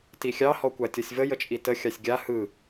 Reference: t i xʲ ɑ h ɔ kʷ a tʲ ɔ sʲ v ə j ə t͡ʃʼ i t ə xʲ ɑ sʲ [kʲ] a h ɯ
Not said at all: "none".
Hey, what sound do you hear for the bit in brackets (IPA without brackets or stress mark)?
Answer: ɡʲ